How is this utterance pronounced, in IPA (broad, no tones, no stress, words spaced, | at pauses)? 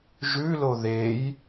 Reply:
ʒʉlo ðej